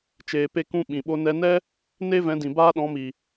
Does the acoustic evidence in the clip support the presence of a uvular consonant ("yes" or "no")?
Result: no